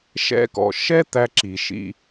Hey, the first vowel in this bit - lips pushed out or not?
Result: no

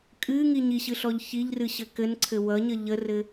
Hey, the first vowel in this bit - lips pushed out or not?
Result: no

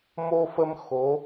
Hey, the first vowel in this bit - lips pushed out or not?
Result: yes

